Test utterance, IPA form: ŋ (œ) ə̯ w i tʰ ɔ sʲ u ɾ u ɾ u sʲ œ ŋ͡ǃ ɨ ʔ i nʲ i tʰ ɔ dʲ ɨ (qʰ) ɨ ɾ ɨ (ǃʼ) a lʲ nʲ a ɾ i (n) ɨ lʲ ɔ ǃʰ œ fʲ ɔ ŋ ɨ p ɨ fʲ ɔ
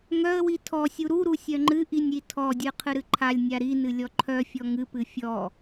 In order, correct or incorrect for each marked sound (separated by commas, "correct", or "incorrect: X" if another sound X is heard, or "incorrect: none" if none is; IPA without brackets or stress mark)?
correct, correct, incorrect: ǃʰ, correct